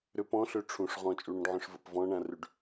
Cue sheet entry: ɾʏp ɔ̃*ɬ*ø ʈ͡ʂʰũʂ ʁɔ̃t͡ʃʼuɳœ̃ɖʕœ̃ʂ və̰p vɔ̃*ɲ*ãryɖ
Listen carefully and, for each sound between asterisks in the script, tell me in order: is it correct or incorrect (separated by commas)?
correct, incorrect